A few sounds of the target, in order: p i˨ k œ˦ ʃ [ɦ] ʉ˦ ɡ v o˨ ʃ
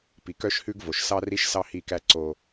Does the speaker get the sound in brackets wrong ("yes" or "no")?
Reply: yes